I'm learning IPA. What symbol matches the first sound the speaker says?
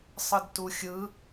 sˤ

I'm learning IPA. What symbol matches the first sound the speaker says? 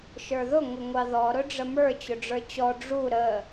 ʃ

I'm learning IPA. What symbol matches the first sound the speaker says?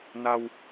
n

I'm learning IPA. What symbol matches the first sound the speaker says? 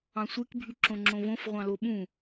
ɑ̃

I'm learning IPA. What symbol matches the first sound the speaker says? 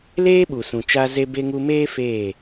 l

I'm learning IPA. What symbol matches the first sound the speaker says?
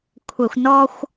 kʷʰ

